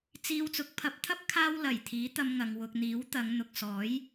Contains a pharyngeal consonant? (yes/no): no